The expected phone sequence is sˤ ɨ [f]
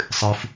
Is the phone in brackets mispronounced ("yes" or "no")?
no